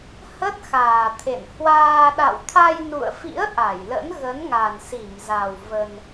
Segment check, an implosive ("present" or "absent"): present